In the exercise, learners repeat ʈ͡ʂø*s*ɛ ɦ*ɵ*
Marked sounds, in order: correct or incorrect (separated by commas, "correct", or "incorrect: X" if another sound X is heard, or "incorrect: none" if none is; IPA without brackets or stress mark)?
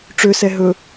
correct, correct